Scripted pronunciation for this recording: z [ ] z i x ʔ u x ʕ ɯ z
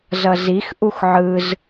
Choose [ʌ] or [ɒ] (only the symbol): ʌ